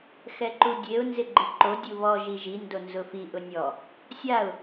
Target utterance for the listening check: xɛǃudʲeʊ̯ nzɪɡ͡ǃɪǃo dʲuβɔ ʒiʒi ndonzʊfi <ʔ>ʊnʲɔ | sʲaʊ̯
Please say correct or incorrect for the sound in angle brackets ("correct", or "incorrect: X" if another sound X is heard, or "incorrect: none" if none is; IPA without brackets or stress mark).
correct